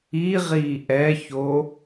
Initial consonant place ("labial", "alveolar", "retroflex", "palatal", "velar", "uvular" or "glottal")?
uvular